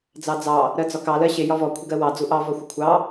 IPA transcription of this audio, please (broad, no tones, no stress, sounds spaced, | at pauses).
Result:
d͡z ɑ d͡z ɑ | ɾ ɜ d͡z ɒ k ɑ l ɜ ɕ ɪ j ɒ v ɔ kʷʰ ɪ ɡ ɜ w ɑ d͡z u ʔ ɑ v ɒ xʷ ɪ kʷʰ ɑ